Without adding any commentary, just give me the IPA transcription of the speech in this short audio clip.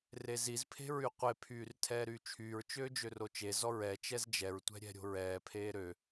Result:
rezizpʰe̤ ɹyqʷepʰyːr tʰɛːɾyːt͡ʃʰyːɹt͡ʃøː d͡ʒørot͡ʃezɔ ɹɛ t͡ʃɛzd͡ʒɛɹtʷɛ̤ ɾʲɛ̤ɾʲo̤ɹɛːpʰeː ɾø

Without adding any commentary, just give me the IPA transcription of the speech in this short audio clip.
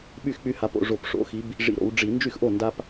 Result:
ɓy˥˩xk͡py˦ha˨˥p o̰˩˧ʐo˧˩p ʂo̰˨˥xi˨˥b | ʐḭ˧˩ ɾo̰˩˧w ɖ͡ʐi˧˩˧ nd͡ʒy˥˩xʔo˥˩ nda˦p

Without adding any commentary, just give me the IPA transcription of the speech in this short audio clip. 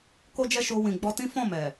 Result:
ko˦d͡ʒɛ˦ ʃo˧ wĩ˨ɡ͡bɔ˧ tĩ˦ fɔ̃˦˨mɛ˨

